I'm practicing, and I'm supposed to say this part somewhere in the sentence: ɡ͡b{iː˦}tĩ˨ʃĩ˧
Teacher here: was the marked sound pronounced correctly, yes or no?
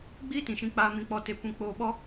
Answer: yes